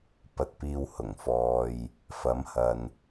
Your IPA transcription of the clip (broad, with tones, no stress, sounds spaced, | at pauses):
p ɐ˨ t̚ p iː˧ w h ʊ˨˩ ŋ f ɔː˨ j | f ɐ˨˥ m h ɐ˨ n